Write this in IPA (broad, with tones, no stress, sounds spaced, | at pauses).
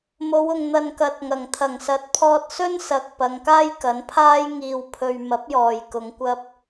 m o˨˧ w ʊ˨ ŋ n̪ ɐ˨ n k ɐ˨ t̚ ŋ ɐ˨˩ ŋ t̪ʰ ɐ˨˩ ŋ s ɐ˨˥ t̚ pʰ ɔː˧ t̚ s ɵ˥ n s ɐ˨ k̚ p ɐ˨˧ ŋ k aː˥ j k ɐ˨˥ n pʰ aː˥ j ŋ iː˧ w pʰ ɵ˧ ɥ m ɐ˨˥ p̚ j ɔː˨ j k ʊ˨˧ ŋ kʷ ɐ˥ p̚